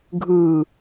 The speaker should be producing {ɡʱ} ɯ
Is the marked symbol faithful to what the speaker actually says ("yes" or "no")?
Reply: yes